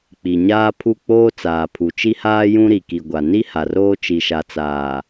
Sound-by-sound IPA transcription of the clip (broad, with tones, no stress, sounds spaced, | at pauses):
k͡p i˨ ɲ aː˦ pʰ u˦˨ k͡p oː˦ t͡s aː˨ pʰ u˨ t͡ʃ i˦ h aː˦ j ũ˦ ɾ i˨ k i˨ ɡʷ a˨ n i˦ h a˨ r oː˦ t͡ʃ i˨ ʃ a˨ t͡s aː˨